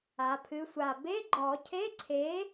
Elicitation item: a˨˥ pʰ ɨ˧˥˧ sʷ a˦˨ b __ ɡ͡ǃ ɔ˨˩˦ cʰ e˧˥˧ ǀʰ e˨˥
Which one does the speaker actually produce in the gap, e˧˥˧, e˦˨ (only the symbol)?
e˧˥˧